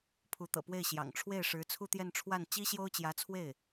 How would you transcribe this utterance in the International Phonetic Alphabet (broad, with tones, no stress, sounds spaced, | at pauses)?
pʰ u˧˥ t̪ ɤ̰˨˩ p w e˥˩ ɪ̯ ɕ j ɑ̰˨˩ ŋ ʈ͡ʂʰ w e˥˩ ɪ̯ ʂ ɻ̩˧˥ t͡sʰ u˥˧ t̪ j ɛ˥˧ n ʈ͡ʂʰ w a˥˩ n t͡ɕ i˥ ɕ j o˥ ʊ̯ t͡ɕ j ä˧˥ t͡sʰ w e˥˩ ɪ̯